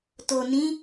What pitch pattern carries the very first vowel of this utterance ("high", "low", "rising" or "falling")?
low